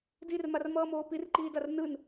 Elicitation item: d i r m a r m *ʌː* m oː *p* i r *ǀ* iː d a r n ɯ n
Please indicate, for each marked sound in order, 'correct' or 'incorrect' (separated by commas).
correct, correct, incorrect